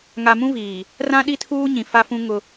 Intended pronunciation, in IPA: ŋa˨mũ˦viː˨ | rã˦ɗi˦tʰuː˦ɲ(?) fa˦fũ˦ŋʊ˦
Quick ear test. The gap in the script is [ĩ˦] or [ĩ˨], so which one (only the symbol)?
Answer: ĩ˨